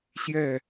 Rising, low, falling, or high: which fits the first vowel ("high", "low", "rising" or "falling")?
falling